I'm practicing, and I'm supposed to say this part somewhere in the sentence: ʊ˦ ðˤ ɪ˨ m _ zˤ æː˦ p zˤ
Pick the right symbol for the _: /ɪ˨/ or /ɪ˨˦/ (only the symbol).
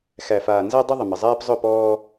ɪ˨